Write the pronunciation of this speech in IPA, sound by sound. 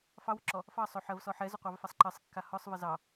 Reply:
f ɑ w ʏ ǁ ɔ | f ɑ sˤ o ħ ɜ v s ɔ ħ ɛ z ʏ qʷ ɑ v f a sˤ ǃ ɜ sˤ kː a h ɔ sˤ v ɜ z ɑ

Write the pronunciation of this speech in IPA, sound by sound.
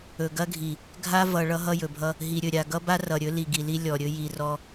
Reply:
ɵ˨ ɡ ɐ˦ ɡʱ i˨ | ɡʱ a˦ v ʌ˨ ɭ ʌ˦ ɦ ʌ˦ j ɵ˨ bʱ ʌ˦ | ɦ i˨ ɾʲ ɵ˨ ɾʲ a˨ ɡ ʌ˦ b a˦ r ʌ˨ ɾʲ ɵ˦ l i˨ ɡ i˨ l i˦ lʲ ɔ˨ ɾʲ ɵ˦ j i˨ r ɔ˦

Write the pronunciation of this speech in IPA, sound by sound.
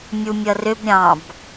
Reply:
mʲ u mʲ ʌ r ʏ b ɾʲ ɑ̃ b

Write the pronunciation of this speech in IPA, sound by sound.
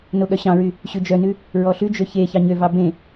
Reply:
n o ɠ œ ɕ ɑ̃ ɹ y | ɕ ʉ d͡ʒ œ n ʉ | ɹ ɔ ɬ ʉ d͡ʒ ø ç e ç ɑ ɲ ø v ɑ b ẽ

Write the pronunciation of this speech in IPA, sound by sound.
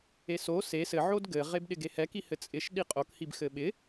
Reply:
e s o s e s ɘ ʕ o d ɡ ɘ ʁ e b ɗ ɪ ɡ e h ɛ k i h ɘ t͡sʼ ɪ ʃ ɗ i qʼ o k h i b x ɘ ɓ ɪ

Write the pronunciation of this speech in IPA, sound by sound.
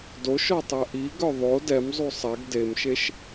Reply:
d o ʃ ɔ tˤ ɛ ʔ i ɡ œ ðˤ o d ɛ m zˤ u sˤ ɛ ɡ d e m ʃ e ʃ

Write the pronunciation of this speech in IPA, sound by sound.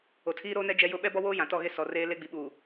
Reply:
o˨ tʰ iː˦ ɾ oː˦ n ɛ˦ d͡ʒ ɛ˦ j ʊ˦ ɓ ɛ˦ b ɔ˦ w oː˦ j ã˨ t ɔ˦˨ ɣ e˦ s ɔ˨ r eː˦ l e˦ ɡ͡b i˨ ɓ uː˨

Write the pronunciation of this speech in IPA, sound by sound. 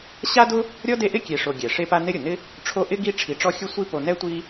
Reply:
ɕ a˥ d ʊ˥ | ɾʲ ɔ˥ d e˦ ʔ ɪ˥ kʲ e˨ ʂ o˨ ɡʲ ɛ˩ ʂ e˦ p a˦ n ɪ˦ ɾʲ ʊ˩ n ɪ˥ | ʈ͡ʂʰ o˥ ʔ ɪ˥ ɡ i˦ ʈ͡ʂʰ i˨ ʈ͡ʂ ɔ˥ xʲ ʊ˦ sʷ i˦ p o˨ n ɛ˥ tʷ i˦

